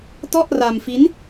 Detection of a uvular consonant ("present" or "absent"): absent